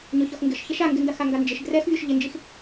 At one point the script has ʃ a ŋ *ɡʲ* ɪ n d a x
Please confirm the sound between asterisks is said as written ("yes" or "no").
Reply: no